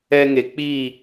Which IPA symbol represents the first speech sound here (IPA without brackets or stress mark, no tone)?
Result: ɛ